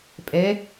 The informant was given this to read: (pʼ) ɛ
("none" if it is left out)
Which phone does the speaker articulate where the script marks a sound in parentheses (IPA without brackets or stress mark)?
pʼ